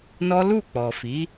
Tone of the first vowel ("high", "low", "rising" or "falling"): high